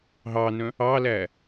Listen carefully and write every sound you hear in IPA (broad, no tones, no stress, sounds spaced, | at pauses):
ɦ ɑ n œ̃ | ɑ l æ